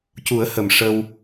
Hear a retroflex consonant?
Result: yes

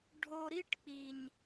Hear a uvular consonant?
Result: no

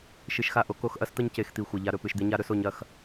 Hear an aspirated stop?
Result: no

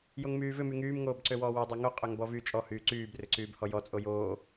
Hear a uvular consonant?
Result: yes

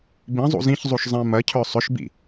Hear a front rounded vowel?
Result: yes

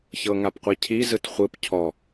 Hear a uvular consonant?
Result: yes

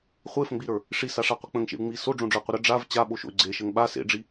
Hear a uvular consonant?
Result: yes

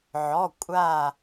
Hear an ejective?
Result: yes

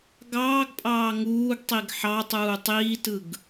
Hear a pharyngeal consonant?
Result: yes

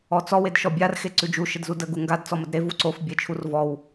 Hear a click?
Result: yes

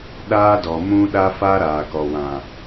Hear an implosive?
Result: yes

